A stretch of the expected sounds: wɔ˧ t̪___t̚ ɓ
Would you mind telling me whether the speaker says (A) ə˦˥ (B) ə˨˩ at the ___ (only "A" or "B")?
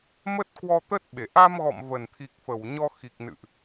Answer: A